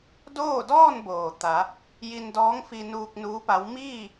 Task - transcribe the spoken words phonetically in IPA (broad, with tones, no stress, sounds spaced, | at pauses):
d oː˥˨ d ɔː˥˨ n b oː˩ t̪ a˩˧ | j i˧ n d ɔː˧˥ ŋ f i˧ n uː˧ k̚ n uː˧˥ p a˧˥ w m iː˥˨